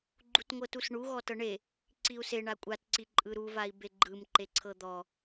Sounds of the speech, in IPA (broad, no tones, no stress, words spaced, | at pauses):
ɡ͡ǃutŋʷɤtusɳu ɣɔtɤɳe | ǀiu̯se ɳakʷʼatǀi ǃʼɯɾuvai̯ beɡ͡ǃɯmǃe ǀʰɤd̪ɔ